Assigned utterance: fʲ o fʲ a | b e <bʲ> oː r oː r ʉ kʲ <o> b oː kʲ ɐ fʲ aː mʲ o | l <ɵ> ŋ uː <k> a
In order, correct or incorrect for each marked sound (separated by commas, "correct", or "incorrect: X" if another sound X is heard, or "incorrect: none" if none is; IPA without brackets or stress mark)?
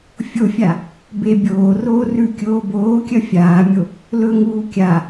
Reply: correct, incorrect: oː, correct, incorrect: kʲ